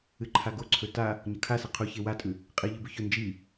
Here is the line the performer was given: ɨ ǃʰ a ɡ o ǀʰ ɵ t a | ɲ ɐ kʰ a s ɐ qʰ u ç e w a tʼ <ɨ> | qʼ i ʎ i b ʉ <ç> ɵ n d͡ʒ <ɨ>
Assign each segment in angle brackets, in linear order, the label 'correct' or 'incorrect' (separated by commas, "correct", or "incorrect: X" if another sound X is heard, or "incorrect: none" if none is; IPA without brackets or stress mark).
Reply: incorrect: ʉ, correct, incorrect: i